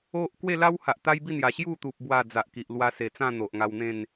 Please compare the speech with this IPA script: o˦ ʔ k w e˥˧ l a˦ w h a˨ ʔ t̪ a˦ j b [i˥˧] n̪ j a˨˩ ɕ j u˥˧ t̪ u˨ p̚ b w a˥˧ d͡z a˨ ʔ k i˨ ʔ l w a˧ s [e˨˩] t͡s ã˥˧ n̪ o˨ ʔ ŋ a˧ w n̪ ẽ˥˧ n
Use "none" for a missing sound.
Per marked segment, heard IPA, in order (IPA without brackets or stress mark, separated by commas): i˥˧, e˨˩